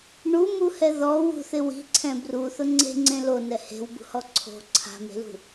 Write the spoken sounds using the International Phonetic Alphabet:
ɳumuhɛ ðɔ wṳθɪ wi̤ǀʰɛ̃ bruθʊ ŋ͡ǀe̤ŋ͡ǀẽ lonɛ he̤wbṳhɔ ǀʰo̤ ǀʰa̤me̤lṳ

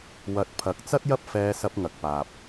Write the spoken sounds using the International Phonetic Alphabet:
wɐ˨˥t̚pʰɐ˨˥k̚t͡sɐ˥t̚jɐ˥p̚ fɛː˧sɐ˧p̚ŋɐ˨k̚paː˨p̚

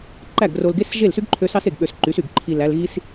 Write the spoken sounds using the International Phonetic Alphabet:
ǃæ˦˨ɡro˧lɡe˦sʒe˦˨l sy˦ɡǃʰø˧ sɑ˦se˨ɡ ɓø˧sǃy˨˦sy˨ɡ ǃʰi˨læ˧l ɣi˦s

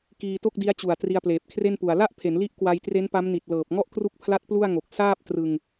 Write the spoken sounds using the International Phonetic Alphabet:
kiː˧to˥˩k̚di˦˥a̯t͡ɕu˨˩a̯ tri˧a̯pleː˨˩p̚ kʰre˥˩npu˨˩a̯ la˥˩ʔpʰe˩˦nli˦˥ʔ kwa˧jtre˦˥npa˦˥mni˨˩t̚ lɤː˨˩p̚ŋɔ˥˩ʔkru˦˥k̚pʰla˦˥t̚ plu˥˩a̯ŋo˨˩k̚ saː˥˩p̚trɯ˧ŋ

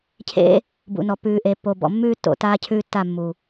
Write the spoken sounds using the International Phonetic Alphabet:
cʰḛ˦ | bṵ˨nɔ˨ pʉː˨ʔe˨ pːo˨bɔ̰˨mːʉː˦ tːo̰˨taː˦cʰʉː˦tːa˦˨ mːu˨

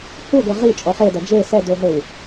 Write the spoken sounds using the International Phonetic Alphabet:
huɡʷɛ ʁit͡ʃʼɔ χedɐ d͡ʒe sɛdoɦɘw

